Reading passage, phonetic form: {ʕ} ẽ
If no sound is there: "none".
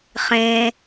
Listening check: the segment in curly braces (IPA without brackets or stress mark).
χ